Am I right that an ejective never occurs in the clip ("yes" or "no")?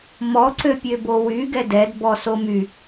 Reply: yes